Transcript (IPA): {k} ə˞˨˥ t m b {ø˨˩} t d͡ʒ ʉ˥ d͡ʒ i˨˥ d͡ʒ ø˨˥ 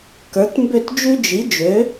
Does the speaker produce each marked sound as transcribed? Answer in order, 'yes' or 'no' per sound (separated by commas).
yes, no